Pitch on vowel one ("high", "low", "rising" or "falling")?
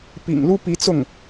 low